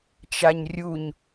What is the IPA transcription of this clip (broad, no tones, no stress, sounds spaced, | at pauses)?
t͡ʃ a ɲ rʲ u ɲ